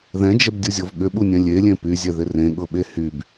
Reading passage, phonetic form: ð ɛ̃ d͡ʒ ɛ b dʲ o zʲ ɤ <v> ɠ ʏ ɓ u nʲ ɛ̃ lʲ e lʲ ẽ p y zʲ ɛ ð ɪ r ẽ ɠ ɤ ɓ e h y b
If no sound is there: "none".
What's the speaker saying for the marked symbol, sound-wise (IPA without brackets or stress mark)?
v